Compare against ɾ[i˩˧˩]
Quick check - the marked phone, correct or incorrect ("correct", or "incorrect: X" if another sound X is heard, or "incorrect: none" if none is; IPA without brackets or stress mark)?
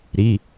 correct